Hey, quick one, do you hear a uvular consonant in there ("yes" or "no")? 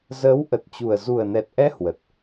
no